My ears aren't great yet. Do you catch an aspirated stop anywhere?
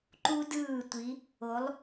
no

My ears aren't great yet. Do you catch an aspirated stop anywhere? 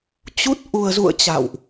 no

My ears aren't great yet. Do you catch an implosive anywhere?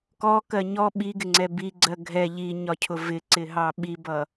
yes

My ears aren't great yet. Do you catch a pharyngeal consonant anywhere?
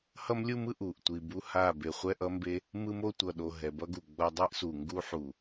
yes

